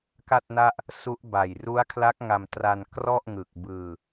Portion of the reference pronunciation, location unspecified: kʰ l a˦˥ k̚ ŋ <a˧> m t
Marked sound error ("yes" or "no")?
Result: no